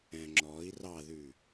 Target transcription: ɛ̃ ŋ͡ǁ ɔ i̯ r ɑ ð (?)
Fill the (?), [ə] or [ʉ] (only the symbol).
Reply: ʉ